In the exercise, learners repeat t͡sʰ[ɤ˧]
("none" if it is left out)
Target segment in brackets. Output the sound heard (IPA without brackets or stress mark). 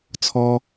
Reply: ɔ˧